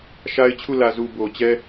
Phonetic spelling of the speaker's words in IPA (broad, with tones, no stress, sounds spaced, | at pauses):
ʃ a˦ ɪ̯ t͡ɕʰ u˦˨ l ä˨ z u˨ b o˨ t͡ɕ ɛ˦